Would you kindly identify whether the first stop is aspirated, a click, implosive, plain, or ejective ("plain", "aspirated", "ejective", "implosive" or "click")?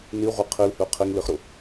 aspirated